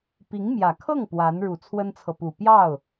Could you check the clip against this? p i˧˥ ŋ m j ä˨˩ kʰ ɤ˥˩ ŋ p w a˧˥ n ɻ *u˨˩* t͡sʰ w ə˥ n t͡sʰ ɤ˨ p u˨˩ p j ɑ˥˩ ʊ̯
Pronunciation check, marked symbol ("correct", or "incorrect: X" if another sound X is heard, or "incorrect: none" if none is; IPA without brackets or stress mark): correct